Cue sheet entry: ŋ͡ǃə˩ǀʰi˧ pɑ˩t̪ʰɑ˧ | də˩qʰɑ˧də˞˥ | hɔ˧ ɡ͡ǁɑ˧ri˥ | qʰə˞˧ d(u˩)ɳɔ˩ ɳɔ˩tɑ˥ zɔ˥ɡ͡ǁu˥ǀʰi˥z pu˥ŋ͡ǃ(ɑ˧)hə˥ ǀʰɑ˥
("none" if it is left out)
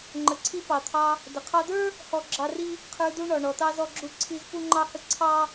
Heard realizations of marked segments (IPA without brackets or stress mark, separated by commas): u˥, ɑ˥